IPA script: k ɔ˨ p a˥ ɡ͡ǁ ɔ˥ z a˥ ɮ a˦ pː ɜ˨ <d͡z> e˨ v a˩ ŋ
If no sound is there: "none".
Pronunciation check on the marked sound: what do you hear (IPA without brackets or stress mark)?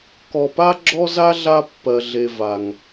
ɮ